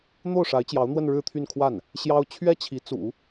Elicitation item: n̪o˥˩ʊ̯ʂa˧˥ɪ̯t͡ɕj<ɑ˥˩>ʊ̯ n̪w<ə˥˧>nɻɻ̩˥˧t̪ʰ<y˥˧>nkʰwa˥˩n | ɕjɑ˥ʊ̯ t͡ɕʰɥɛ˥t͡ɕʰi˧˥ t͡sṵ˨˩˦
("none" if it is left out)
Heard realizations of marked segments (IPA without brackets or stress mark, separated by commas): ɑ˧˥, ə˥˧, y˥˧